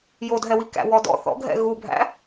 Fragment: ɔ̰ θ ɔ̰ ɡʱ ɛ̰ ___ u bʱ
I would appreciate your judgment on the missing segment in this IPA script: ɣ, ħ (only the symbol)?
ɣ